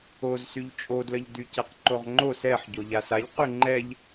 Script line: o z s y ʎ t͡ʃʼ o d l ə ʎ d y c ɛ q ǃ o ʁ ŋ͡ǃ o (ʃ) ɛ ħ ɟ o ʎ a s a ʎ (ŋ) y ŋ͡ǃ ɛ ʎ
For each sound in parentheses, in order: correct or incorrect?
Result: incorrect, incorrect

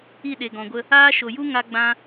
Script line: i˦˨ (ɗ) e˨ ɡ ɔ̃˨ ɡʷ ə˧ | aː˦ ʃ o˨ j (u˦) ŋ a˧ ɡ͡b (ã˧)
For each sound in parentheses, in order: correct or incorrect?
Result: correct, correct, correct

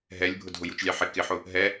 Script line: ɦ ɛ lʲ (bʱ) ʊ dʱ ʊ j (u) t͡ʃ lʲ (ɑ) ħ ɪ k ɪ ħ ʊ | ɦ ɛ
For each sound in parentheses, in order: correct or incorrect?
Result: correct, correct, correct

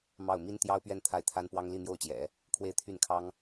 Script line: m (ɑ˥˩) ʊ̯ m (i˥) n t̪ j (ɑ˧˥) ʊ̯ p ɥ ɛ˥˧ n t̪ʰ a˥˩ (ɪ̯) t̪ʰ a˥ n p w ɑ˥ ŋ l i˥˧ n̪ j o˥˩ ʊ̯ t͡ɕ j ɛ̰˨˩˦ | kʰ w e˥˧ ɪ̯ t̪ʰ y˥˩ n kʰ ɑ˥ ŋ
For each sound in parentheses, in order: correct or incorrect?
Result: correct, correct, incorrect, correct

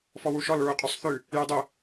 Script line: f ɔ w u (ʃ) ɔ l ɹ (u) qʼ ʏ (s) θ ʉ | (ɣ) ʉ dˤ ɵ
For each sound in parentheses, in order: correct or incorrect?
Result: correct, correct, incorrect, incorrect

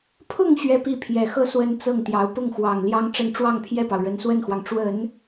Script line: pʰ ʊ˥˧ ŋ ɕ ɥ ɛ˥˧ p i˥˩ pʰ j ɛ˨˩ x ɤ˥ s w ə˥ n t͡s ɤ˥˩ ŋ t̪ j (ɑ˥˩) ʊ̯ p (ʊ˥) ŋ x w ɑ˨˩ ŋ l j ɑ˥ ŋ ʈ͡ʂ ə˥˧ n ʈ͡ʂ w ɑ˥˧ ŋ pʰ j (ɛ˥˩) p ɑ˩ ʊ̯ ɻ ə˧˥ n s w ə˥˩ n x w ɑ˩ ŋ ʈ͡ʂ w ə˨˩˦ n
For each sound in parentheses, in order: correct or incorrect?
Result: incorrect, incorrect, correct

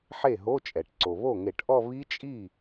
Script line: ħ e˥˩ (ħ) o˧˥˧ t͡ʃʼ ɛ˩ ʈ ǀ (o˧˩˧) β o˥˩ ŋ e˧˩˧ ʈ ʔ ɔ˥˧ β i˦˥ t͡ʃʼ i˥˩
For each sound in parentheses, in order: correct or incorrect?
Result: incorrect, incorrect

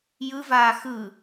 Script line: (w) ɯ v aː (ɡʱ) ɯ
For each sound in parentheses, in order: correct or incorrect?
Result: incorrect, incorrect

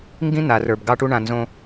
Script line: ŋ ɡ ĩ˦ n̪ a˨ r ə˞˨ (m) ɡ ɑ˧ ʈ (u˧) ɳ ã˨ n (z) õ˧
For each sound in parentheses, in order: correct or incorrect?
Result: incorrect, correct, correct

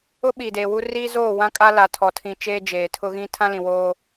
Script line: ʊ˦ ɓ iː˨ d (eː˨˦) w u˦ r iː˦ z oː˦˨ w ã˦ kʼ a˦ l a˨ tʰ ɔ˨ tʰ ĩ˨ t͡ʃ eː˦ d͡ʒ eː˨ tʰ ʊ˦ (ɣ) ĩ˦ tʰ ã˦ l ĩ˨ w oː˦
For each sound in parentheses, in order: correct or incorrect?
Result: incorrect, correct

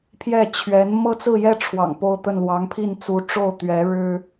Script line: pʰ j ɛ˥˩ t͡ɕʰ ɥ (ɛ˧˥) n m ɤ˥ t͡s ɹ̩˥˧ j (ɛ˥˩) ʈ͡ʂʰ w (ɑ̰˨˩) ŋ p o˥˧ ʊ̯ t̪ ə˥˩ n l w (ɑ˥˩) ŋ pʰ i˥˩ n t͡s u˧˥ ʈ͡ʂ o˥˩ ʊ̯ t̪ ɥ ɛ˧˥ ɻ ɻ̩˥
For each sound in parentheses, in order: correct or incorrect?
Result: correct, correct, correct, incorrect

